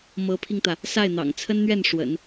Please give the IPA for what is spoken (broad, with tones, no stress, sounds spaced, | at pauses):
m ɤ˧˥ pʰ i˧ ŋ t̪ ä˩ | s a˥˩ ɪ̯ n̪ ɑ̰˨˩ ŋ t͡sʰ ə˥ n n̪ ɥ ɛ˥˩ n ʂ w ə̰˨˩˦ n